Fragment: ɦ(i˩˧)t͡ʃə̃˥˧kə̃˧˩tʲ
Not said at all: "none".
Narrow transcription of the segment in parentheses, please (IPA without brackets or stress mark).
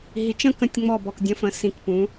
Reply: i˩˧